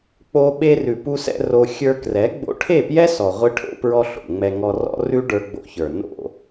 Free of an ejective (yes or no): yes